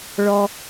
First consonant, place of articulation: retroflex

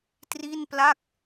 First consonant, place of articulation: alveolar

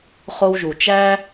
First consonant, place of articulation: uvular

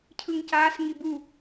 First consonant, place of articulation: palatal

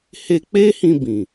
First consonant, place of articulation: glottal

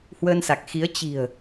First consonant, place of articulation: glottal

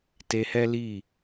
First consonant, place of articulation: alveolar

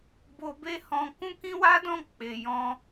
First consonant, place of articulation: labial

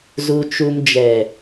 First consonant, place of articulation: alveolar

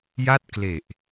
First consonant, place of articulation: palatal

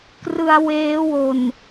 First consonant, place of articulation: velar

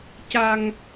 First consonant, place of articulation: palatal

